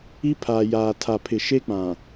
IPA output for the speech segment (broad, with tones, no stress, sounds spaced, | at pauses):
i˦ pʰ aː˨ j aː˨ tʰ a˨ pʰ ɪ˨ ʃ e˦ k͡p ã˨